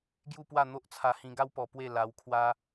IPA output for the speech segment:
ɡju˥˧pwa˥˧ n̪o˦ʔt͡sʰa˧hĩ˧ɡa˦w pɔ˧pwe˥˧la˧wkʰwa˦

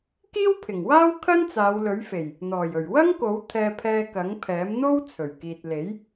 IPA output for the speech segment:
kiː˥wpʰɪ˨˩ŋwaː˥w kʰɐ˥nt͡saː˨˧wlɵ˨˥ɥfe˨˩j | n̪ɔː˨˩jɵ˨˩ɥwɐ˥ŋko˨˥w t̪ʰɛː˧pʰɛː˧ kɐ˨˥ŋpʰɛː˨˥mn̪o˥w t͡sʰɵ˨˩ɥkiː˨t̚le˨˥j

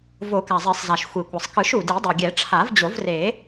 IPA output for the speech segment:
vo˨˩˦ka˩zˤe˨˩˦sˤza˩ʃ xʷi˩kʷʌ˩sˤkɯ˨˩˦ʃ u˩di˨˩˦dˤu˩ ɡʲɛ˨˩˦ʈ͡ʂʰa˨˩˦vd͡ʑo˨˩˦vre˨˩˦

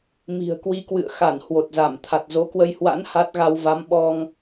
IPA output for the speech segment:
mi̤˨˩ə̯ kwi˧kwɨ̰˧˨ə̯ xa˧˩n hwo˨˩t̚za˧˩m t̪ʰa˨˩t̚zo˨˦kwə˧jhwa̰˧˥n ha˦˥t̚ɣa˧wva˨˦m ɓɔ˧ŋ

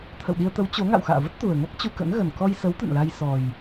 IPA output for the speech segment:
t̪ʰə̰˧˨wɗi˧ə̯t̪ə˨˦w t͡ɕo˨˦ ŋa̰˧˨wxa̰ː˧˨və˦˥t̚ t̪u˨˩ə̯ŋa˦˥k̚ t͡ɕu˧kə̰˧˥nɣə˨˩n kɔ˧jsə˨˦w t̪ə̰˧˨nla˧jsɔ˨˩j

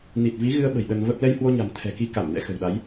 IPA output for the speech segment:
ni˨˩t̚ vi˨˦ɣɨ˧ə̯ɓə̤˨˩j ɗə˧nvə˦˥p̚ lɛ˧jhwo˧ɲa̤˨˩m t̪ʰɛ̤˨˩ki˨˦ ka˧˩m nɛ̰˧˥xə̤˨˩wɗa˨˦j

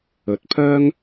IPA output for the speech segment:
ɵ˨˥t̚pʰœː˥ŋ

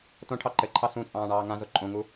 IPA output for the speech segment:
tõʈʰɑ ǃɘǃʰɑ sũ t͡sʼɑ̃ːɳɑːŋãzo ǃʼõŋu

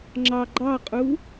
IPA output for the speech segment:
ŋ͡ǁɑɡ͡ǃɑqʼu

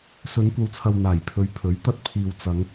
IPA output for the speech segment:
sɵ˨˧nkʷɐ˨wt͡sʰɐ˨w n̪aː˨˩jpʰɵ˨˧ɥ pʰɵ˨˥ɥt̪ɐ˧t̚pʰiː˨w t͡sɐ˨˧ŋ

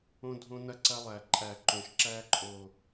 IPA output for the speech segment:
õ˦dʱõ˦nɐ˦ǀɐ˦ lˠæ˨ǃʼæ˨ǃõ˨ʃǁæ˦ ǃʼo˨

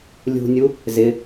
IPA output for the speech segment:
lʲṳnʲu | zɪ

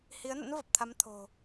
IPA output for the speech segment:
hi˨˦ə̯nə̰˧˥n və˨˩p̚t̪ʰa˨˦mt̪ʰo̤˨˩

